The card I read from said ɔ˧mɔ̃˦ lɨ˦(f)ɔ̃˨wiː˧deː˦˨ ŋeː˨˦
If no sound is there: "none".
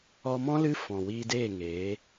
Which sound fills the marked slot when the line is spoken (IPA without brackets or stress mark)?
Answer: f